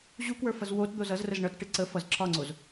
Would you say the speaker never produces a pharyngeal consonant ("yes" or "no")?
yes